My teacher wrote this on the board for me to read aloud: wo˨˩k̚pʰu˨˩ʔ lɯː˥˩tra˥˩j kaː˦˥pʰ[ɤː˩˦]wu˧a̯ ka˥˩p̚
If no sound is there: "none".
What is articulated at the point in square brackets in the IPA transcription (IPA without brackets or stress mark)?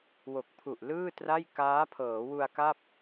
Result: ɤː˩˦